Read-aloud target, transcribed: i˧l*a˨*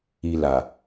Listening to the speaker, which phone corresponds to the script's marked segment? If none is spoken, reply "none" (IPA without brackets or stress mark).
a˨